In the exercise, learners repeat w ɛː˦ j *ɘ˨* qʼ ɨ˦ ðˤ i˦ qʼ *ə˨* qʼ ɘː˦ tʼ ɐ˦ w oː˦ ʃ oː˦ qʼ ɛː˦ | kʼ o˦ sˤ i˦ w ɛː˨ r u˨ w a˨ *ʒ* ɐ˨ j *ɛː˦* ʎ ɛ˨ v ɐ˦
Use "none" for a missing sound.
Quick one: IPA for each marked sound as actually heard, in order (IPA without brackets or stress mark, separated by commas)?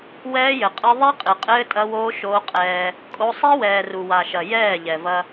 ɘ˨, ɨ˨, ʃ, ɛː˦˨